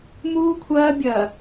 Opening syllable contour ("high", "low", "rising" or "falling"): high